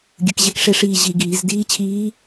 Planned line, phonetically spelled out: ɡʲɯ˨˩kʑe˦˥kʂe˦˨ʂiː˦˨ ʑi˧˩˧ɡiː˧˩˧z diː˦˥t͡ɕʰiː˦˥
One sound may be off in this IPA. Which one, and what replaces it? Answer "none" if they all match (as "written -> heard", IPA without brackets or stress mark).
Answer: none